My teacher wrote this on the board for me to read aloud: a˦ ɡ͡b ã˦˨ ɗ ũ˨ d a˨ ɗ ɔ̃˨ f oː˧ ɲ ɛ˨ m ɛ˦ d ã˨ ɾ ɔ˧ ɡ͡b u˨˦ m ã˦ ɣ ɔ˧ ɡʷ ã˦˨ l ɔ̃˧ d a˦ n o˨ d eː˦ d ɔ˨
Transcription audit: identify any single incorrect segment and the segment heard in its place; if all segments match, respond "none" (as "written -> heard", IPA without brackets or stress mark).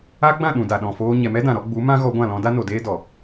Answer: none